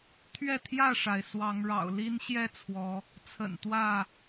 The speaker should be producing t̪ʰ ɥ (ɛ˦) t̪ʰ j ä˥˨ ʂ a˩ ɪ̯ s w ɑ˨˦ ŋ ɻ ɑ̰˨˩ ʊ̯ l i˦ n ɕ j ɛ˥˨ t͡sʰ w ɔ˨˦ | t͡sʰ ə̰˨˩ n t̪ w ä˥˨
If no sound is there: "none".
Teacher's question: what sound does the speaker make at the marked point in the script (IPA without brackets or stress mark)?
ɛ˥˨